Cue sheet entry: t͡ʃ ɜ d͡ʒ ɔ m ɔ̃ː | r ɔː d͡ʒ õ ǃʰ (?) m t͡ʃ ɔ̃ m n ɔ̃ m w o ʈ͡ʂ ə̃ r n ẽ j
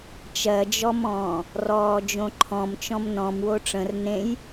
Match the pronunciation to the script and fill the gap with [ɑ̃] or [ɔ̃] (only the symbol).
ɔ̃